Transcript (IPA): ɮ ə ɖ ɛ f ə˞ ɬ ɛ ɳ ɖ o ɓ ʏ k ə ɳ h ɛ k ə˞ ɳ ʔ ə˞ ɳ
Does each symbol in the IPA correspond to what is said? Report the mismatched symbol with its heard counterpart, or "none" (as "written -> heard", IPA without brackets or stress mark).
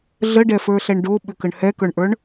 none